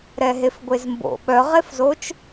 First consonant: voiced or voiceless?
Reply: voiced